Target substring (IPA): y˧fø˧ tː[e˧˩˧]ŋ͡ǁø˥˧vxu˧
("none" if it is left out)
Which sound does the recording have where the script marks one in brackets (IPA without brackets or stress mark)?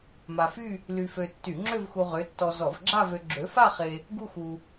y˧˩˧